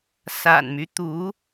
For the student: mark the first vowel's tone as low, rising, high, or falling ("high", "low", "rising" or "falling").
low